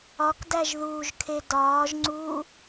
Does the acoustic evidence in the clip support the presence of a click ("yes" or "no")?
yes